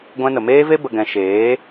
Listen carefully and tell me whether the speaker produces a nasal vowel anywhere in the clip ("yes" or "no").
yes